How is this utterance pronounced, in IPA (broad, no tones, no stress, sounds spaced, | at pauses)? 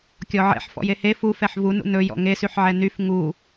kʲ ɔ ʕ ɛ̰ ħ f ɔ̰ j e h e f u f ɛ ħ v u n ṵ n ɵ j ɔ̰ ŋ e s y ħ ʕ ɛ n y f ŋ u